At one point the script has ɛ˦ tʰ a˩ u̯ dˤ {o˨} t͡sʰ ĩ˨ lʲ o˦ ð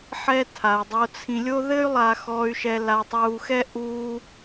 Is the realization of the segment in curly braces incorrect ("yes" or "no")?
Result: no